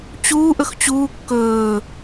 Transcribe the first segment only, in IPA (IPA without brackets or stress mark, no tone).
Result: t͡ɕ